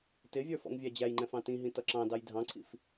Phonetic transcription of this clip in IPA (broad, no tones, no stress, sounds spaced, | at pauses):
t ɪ vʲ ə˞ f ɔ̰ ŋ vʲ æ d͡ʑ æ j ŋ͡ǃ ɛ̃ f ɑ̃ t ĩ ɦ ĩ t ʌ ǁ ɑ̃ d ɑ j dʱ ɑ̃ ǀʰ ḭ f